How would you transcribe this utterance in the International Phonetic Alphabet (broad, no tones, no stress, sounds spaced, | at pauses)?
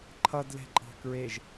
ǃʰ ʌ d l ɛ̤ ǃʼ ɑ̤ k ɹ e ʒ